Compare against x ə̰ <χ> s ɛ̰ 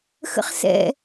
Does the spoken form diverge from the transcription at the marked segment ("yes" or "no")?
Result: no